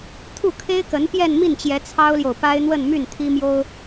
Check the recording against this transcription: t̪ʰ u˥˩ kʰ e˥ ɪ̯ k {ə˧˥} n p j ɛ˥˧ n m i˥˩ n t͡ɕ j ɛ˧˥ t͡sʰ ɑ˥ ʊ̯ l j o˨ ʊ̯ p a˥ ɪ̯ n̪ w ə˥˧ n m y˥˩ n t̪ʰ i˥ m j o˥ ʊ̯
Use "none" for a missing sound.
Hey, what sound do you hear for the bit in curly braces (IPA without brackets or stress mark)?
ə˧˥